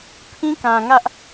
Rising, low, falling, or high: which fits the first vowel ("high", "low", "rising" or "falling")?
high